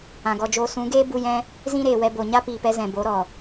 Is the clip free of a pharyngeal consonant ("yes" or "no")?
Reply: yes